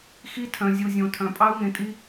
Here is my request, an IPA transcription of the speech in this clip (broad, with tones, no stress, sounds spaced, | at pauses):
x i˦˥ tʰ œ̃˨ zʲ u˨ zʲ õ˨ tʰ œ̃˨ pʼ ɑ˦˥ u̯ ŋ ẽ˨ tʼ i˦˥